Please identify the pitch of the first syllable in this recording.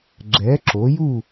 rising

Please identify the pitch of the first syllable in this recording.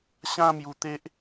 high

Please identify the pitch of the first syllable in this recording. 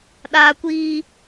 high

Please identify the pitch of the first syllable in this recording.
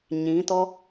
rising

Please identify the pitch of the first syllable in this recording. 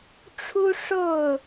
high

